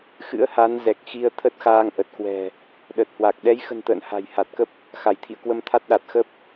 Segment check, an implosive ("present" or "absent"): present